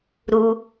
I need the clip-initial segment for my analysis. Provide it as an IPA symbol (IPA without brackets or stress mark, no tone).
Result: ɾ